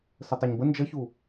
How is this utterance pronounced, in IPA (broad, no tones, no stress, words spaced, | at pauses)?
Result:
sətˤeɲbə nd͡ʒʌçu